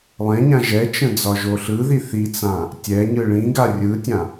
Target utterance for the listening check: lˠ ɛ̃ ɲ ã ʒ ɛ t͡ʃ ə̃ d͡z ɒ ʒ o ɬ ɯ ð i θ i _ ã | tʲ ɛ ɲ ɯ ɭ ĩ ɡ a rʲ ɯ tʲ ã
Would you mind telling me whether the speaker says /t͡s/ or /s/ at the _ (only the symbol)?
t͡s